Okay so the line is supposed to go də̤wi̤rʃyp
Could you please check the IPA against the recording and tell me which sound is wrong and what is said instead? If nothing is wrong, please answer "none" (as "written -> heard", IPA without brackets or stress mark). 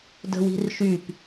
none